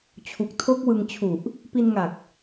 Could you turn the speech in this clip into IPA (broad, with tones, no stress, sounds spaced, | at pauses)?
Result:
t͡ɕʰ u˨˩ k̚ tʰ o˦˥ k̚ w ɯ˧ ŋ t͡ɕʰ u˨˩ ʔ | p i˧ n ŋ a˨˩ k̚